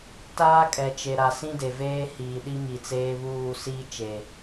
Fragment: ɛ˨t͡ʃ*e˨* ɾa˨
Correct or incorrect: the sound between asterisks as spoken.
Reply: correct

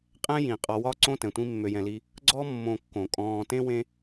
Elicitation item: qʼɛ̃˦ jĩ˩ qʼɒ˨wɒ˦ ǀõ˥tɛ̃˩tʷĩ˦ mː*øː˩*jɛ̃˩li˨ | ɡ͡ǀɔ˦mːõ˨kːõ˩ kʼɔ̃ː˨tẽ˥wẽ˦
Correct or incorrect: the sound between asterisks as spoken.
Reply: incorrect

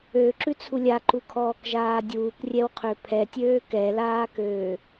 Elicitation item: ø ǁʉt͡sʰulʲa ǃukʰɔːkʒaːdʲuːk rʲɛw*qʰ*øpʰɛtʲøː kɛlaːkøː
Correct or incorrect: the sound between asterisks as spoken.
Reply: correct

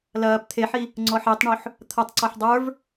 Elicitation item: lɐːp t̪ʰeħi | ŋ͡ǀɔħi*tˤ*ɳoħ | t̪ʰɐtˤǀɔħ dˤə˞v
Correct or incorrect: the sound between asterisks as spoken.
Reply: correct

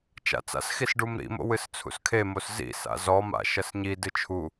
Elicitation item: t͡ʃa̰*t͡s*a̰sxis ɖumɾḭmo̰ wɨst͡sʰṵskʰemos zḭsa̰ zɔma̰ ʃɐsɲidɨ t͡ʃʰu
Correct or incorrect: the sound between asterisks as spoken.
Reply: correct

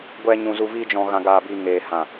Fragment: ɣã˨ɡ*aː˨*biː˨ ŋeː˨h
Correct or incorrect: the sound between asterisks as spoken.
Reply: correct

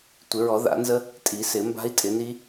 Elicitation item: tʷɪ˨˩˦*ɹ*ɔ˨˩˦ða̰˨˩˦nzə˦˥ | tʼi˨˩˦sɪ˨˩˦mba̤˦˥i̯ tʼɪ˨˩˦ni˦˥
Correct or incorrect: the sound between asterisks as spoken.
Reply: correct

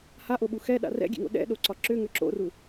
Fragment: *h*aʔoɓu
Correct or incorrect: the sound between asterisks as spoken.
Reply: correct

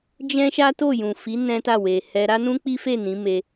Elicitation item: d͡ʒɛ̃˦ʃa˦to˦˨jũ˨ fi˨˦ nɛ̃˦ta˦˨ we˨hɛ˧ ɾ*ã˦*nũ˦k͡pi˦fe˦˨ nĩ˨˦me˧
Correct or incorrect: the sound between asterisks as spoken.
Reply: incorrect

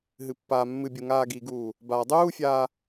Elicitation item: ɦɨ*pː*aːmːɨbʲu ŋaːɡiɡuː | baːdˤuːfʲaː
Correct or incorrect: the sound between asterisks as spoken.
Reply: correct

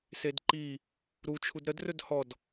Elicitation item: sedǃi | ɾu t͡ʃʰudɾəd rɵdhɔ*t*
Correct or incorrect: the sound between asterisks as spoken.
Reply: incorrect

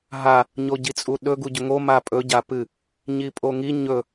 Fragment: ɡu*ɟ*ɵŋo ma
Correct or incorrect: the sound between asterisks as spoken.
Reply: correct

